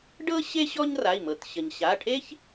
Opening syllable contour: high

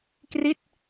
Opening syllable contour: falling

